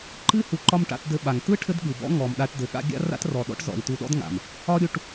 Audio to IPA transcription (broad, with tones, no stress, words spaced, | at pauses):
ǃɨ˦ hu˨ǃɒ˧m ʈa̰˧tdɘ˧ɓa˨ŋ tɯ˦ ʈʰɘ˦dɠɯ˨bɔ̰˦ ŋɔ˨mɗa˧ʈdɘ˨ɠa̰˦ ɡʲa̰˦ ra̰˦trɔ˨ɗɔ̰˦ʈzɔ̰˨i̯ tu˧ɗɔ̰˦dŋa̰˨m | ɒ˦ ɾʲu˧ʈ